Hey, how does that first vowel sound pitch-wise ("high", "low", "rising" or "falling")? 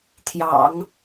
low